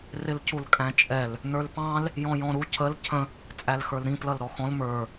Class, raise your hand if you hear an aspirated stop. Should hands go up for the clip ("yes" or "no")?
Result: yes